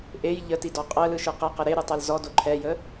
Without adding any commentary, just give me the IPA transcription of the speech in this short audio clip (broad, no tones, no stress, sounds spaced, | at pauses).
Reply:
ʔ e j ʎ ə t i d ɔ qʼ ɜ l ɯ ʃ ɯ q ɛ q ə ɾ e ɾ ɯ tˤ ɛ l z ɔ d o ǃʰ ɛ j ə